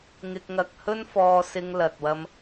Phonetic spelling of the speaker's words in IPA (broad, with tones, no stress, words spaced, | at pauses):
ŋɪ˧k̚ŋɐ˧k̚hɵ˥nfɔː˧ sɪ˧ŋlɐ˨t̚wɐ˧m